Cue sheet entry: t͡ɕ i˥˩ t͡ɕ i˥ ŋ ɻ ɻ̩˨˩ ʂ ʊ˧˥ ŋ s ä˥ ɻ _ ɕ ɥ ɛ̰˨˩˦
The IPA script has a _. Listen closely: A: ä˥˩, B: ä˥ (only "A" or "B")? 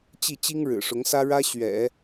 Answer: B